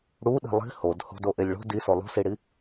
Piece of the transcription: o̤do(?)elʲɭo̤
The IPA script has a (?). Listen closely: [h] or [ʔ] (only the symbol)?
ʔ